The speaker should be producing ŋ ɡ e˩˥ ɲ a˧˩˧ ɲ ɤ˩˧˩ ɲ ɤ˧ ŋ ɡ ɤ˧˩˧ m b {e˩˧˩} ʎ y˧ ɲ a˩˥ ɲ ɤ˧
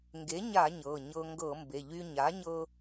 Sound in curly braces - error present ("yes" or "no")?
no